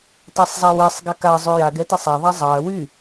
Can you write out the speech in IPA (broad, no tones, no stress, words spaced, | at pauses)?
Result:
tasˤzˤawesˤ ɡaka zˤyjaɡɛtesˤ a ðˤazˤɑɐ̯ wy